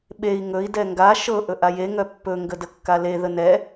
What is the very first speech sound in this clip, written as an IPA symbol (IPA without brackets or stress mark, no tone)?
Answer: ɓ